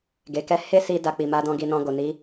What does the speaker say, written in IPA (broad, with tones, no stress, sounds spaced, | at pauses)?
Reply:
ɡ e˨ k ɛ˧ h e˦ s i˧ d a˧ k͡p i˨ m a˧ d ɔ̃˧ ɡ i˨ n ɔ̃˨ ɡ o˨ n i˨˦